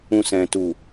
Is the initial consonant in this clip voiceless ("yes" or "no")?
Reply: yes